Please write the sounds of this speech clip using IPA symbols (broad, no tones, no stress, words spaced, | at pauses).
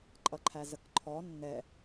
ǃʼʌǃʰæzəkǃʰɔ nːɛ